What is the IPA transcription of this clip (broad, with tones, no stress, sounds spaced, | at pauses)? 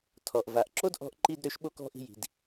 tʰ ɔ˩ ʔ v a˩ ʔ ǁ o˥ d ʔ ɔ̤˦ ʔ ǃ i˦ d ɾ ø˦ ʃ ɓ o˦ k ɔ̤˦ ʔ i̤˦ j i̤˨ d